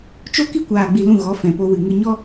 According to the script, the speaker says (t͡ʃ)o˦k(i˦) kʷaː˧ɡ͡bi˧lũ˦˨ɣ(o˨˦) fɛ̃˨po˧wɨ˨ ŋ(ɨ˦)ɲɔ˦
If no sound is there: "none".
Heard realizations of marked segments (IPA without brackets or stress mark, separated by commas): t͡ʃ, i˦, ɔ˨˦, ɨ˧